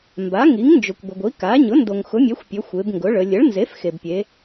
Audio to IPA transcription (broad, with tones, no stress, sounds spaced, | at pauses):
m b a˩˥ ŋ i˩˥ ŋ n d͡ʒ ʊ˩ kʷ ɡʷ ə˩ ɡʷ i˩˥ k a˩˥ ɲ ʊ˩˥ n d o˩ ŋ x ʊ˩˥ mʲ ɛ˩˥ xʷ pʲ ɵ˩˧ xʷ e˩˧ b ŋ ɡ ʊ˩˥ ɭ ə˩˧ lʲ ə˩˥ ɭ n z e˩˥ f x e˩ b pʲ e˩˧